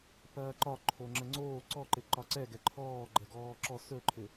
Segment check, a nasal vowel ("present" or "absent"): absent